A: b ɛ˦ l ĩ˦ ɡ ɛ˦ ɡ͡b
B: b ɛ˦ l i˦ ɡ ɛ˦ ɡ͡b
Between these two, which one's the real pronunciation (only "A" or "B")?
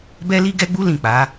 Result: B